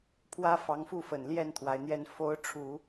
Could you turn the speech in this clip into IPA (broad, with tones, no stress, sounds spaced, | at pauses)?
pʰ w ä˥ f ɑ˧˥ ŋ f u˥˩ f ə˨˩ n l j ɛ˥˩ n t̪ʰ w a˧˥ ɪ̯ n̪ j ɛ˥ n f o˧˥ ʊ̯ ʈ͡ʂʰ u˨˩˦